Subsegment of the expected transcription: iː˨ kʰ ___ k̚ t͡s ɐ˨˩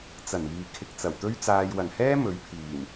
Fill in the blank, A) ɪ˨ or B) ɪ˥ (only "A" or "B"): A